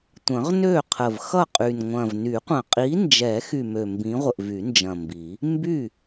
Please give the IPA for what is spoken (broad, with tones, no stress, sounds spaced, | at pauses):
tʷ ə̃˨˩˦ ʁ n ø˥˩ qʰ ə˨˩ v x ʌ˥˩ qʼ y˨˩ n ŋʷ ɐ̃˨˩ v n y˨˩˦ qʷ ɐ̃˨˩ qʼ i˨˥ n d͡ʒ ɛ˨˩˦ x y˨˩ m ø˨˩ m b ĩ˨˥ ʁʷ ə˨˩ ʔ v y˨˩˦ n d͡ʒ ɐ̃˨˩ m b i˨˩˦ | m b y˥˩